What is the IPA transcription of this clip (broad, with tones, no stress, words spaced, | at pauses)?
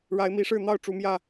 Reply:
ɻa˨˦ɪ̯mi˨˦ʂɻ̩˥˨ n̪ɑ˥˨ʊ̯ʈ͡ʂu˨˦mjä˥˨